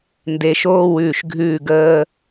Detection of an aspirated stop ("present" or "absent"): absent